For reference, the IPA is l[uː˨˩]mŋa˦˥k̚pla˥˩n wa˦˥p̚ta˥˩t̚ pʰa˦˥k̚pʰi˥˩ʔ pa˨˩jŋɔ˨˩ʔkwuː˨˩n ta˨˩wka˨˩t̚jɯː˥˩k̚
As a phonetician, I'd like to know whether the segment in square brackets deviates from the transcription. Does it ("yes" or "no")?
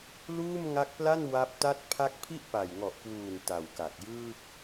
yes